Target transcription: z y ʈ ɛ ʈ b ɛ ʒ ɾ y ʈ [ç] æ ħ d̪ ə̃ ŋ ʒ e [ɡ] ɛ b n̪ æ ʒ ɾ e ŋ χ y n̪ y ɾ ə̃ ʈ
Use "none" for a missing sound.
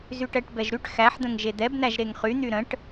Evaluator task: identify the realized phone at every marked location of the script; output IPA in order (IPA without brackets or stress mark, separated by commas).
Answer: x, d̪